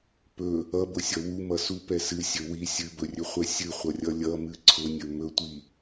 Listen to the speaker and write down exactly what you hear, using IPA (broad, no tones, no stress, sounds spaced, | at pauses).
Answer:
p ɵ | ʌ b ʊ sʲ ʌ w u m ʌ s u p ɛ s ɨ sʲ ɵ w i sʲ ɨ b ɵ rʲ ɵ χʷ ɛ sʲ ɨ χʷ ʌ rʲ ʌ lʲ ʌ m ɨ ǀʰ ʊ nʲ ɵ m ɵ tʷ i